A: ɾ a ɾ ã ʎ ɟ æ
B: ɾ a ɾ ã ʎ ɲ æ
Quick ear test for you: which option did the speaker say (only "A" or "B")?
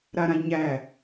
B